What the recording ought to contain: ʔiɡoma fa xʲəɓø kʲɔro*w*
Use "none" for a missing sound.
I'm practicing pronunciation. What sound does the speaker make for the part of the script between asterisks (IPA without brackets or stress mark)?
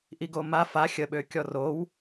w